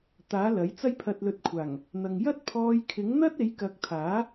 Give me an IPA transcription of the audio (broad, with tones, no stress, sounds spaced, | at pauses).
t̪ aː˨˥ l ɐ˨˥ j t͡s ɐ˥ j pʰ ɐ˨ t̚ l ɵ˨˥ t̚ kʷʰ aː˨˩ ŋ | n̪ ɐ˨ ŋ j ɐ˥ t̚ pʰ ɔː˧ j kʰ ɪ˨˥ ŋ n̪ ɐ˥ t̚ e˨˥ j k ɐ˨˥ k̚ t̪ʰ aː˨˥